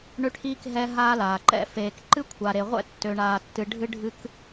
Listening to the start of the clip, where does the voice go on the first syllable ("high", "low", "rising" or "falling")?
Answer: high